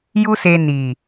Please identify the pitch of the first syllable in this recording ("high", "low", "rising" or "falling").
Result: high